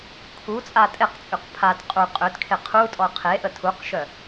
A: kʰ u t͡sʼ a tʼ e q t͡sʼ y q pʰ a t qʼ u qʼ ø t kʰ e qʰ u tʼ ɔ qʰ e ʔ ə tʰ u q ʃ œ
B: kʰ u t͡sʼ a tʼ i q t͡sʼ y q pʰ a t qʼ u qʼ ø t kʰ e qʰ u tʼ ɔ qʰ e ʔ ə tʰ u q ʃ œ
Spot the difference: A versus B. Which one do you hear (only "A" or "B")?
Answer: A